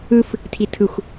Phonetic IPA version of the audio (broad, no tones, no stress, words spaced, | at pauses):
ɯf | tʰitʰɯxʷ